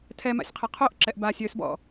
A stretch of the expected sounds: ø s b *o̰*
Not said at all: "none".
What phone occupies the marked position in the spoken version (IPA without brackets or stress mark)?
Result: ɔ̰